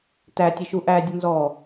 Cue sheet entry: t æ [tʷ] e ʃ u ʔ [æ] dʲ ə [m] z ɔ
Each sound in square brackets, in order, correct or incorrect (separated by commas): incorrect, correct, incorrect